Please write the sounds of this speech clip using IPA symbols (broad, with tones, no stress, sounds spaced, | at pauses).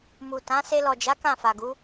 m u˨ t ã˨˦ s e˧ l ɔ˨ d͡ʒ a˨˦ k ã˦˨ f a˨ ɡ u˨˦